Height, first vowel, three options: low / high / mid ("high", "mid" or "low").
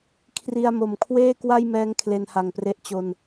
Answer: high